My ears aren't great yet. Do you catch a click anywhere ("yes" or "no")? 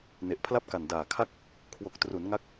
no